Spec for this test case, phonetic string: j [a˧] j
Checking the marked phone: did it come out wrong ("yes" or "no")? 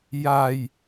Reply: yes